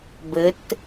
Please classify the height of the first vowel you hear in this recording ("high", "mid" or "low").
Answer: mid